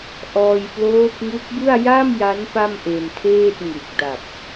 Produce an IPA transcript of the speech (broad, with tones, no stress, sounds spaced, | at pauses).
ʔ ɔː˧ j p l oː˦˥ p̚ ŋ u˦˥ k̚ b ɯ˥˩ a̯ j a˥˩ m j a˦˥ n p a˥˩ m ʔ e˧ n tʰ eː˥˩ t̚ ŋ u˨˩ k̚ d a˨˩ p̚